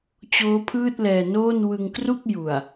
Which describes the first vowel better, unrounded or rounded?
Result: rounded